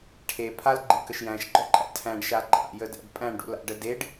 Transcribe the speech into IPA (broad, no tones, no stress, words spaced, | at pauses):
ʈʰe pʰalɡ͡ǃikəʃ jæ̃ʃɡ͡ǃɔǃʼæ̰ tʰæ̃ɖʃa ɡ͡ǃa̰jədæ̰ɖ pʼæ̃ɳɖṵla̰ɖə deɖ